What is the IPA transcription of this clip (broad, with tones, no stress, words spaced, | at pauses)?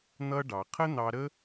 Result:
n̪ʌ˥ ɖɑ˩qʰə˥ n̪ɑ˧ɾə˥